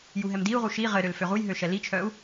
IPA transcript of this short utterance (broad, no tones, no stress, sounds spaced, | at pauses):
j u ɦ ɛ m d i u̯ ʁ u ʃ i ʁ ɘ ɾ ø l f ø ʁ u j ɦ ø ʃ ɛ l i t͡ʃʰ œ u̯